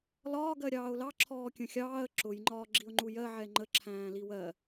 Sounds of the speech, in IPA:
l ɒː ɡ ɜ ɾʲ ɑː ʊ̯ l ɑ ǁʰ ɔː kʲ ə̃ xʲ ɑː ə̯ ǁ ʊ j ŋ͡ǃ ɒː ɡ͡ǁ i ʊ̯ ŋ͡ǃ u j ɜ ʕ ɛ ŋ͡ǃ ə ǁʰ æ̃ː l i w ɜ

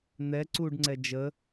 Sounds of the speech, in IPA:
n̪ ɛ ǀ u ɖ ŋ͡ǀ ɛ d͡ʒ ə

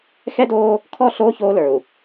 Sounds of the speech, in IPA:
x ɛ˦ d oː˦ | kʰ ɔ˦˨ ɬ oː˦ ç oː˦ l ə˞˨ u̯

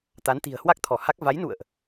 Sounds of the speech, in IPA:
t̪ a˨˦ n t̪ i̤˨˩ ə̯ h w a˦˥ k̚ t̪ʰ ɔ˧˩ h a˦˥ k̚ v a˨˦ j n ṵ˧˨ ə̯ ʔ

